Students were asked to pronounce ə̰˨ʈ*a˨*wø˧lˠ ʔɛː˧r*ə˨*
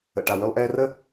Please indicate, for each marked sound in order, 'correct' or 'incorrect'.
correct, incorrect

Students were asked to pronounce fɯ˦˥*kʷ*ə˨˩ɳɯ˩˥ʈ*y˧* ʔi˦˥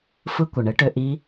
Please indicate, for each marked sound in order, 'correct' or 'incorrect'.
correct, incorrect

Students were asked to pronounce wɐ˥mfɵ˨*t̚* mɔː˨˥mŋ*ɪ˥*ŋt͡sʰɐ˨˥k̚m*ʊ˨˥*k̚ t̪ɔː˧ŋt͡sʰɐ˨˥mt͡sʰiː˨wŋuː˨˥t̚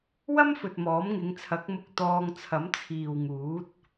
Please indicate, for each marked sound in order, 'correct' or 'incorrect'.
correct, incorrect, incorrect

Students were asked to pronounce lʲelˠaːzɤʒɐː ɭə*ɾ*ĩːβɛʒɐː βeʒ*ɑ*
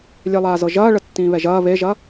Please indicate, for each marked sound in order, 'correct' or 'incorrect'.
incorrect, incorrect

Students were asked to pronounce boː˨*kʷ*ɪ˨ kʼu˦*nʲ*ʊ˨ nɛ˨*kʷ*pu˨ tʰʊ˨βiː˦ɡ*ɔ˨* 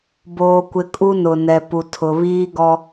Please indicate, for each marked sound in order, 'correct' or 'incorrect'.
correct, incorrect, incorrect, incorrect

